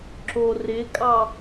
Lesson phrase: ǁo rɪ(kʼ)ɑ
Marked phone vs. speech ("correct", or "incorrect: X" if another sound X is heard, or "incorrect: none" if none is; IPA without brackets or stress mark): correct